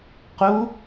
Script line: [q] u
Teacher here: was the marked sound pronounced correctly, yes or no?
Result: yes